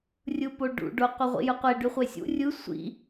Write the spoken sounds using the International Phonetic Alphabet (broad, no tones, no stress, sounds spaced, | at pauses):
rʲ ɯ p o ɖ ṵ ɖ o qʷ i ʁʷ ḭ j ɯ qʷ e ɖ y χʷ e sʲ ṵ rʲ ɯ sʷ ḭ